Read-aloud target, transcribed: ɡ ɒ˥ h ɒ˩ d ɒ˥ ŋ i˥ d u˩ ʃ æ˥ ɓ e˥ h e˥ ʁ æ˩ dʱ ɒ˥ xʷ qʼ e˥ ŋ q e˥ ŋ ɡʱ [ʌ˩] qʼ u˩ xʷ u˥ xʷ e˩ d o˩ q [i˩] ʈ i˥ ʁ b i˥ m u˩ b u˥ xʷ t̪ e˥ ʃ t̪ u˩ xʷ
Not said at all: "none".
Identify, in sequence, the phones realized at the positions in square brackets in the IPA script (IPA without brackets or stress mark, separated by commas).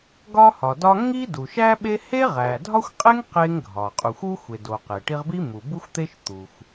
ɒ˩, e˩